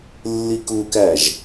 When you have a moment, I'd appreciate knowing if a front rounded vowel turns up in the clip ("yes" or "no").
no